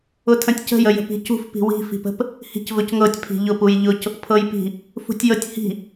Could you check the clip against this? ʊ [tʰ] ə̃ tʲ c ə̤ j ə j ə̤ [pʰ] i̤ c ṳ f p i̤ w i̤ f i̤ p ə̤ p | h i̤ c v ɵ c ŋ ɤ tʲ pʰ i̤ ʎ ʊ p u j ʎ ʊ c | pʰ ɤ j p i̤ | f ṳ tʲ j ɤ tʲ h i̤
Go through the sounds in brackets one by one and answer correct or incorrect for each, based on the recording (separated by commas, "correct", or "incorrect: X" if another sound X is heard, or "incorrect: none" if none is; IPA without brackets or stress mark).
correct, incorrect: p